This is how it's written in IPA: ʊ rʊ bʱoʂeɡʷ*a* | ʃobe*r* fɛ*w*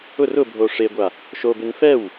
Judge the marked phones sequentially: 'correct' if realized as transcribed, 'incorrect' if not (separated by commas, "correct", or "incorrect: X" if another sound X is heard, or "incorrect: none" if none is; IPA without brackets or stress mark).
correct, incorrect: n, correct